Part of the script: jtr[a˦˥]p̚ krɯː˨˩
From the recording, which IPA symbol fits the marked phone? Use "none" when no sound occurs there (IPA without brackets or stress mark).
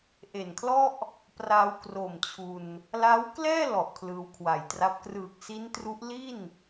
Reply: a˦˥